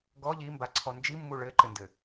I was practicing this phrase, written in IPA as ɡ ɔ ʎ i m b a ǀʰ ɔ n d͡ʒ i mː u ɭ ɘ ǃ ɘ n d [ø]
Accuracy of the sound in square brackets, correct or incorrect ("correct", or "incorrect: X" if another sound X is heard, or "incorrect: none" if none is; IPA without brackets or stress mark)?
incorrect: ɘ